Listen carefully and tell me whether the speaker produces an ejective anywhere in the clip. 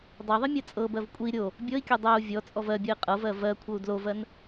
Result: yes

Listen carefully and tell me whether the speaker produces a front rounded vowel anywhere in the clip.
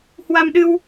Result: no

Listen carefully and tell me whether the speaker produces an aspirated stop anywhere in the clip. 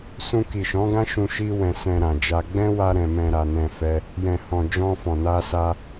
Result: no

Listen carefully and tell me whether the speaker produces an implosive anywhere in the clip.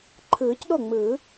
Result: yes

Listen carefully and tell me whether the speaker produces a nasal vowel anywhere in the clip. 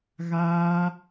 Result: no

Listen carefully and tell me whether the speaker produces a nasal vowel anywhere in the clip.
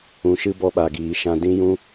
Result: yes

